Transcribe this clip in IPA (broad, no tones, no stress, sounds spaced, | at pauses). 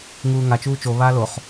ŋ uː ŋ a t͡ʃ uː t͡ʃ o β aː l o χ